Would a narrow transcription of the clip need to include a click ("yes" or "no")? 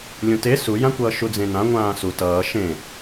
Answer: no